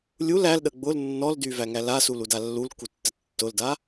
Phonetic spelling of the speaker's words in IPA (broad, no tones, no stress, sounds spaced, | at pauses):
lʲ u l æ l ɗ ə ɡ͡b ʊ l nː ɔ l d y v æ ŋ æ l a s u l u d a lː u l k u tː ə tː ʊ l d a